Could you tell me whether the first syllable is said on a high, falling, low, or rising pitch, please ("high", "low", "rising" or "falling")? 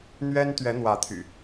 high